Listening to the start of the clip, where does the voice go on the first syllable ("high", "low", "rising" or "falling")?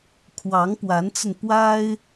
rising